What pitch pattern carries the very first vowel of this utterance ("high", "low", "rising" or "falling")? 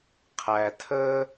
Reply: low